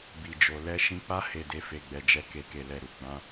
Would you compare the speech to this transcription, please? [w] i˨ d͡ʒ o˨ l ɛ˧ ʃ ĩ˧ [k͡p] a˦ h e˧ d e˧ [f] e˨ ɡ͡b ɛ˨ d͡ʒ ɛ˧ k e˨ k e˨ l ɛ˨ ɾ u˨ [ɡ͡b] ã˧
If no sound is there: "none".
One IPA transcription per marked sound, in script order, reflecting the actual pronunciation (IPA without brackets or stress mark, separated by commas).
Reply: b, k͡p, f, ɡ͡b